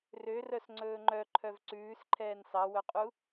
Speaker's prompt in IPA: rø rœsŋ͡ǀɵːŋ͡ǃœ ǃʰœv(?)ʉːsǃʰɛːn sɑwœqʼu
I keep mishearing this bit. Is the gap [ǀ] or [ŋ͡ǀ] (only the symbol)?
ǀ